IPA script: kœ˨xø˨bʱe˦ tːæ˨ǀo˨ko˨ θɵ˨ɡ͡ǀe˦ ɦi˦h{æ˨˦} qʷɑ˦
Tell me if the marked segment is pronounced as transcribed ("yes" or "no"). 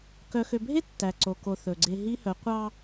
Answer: no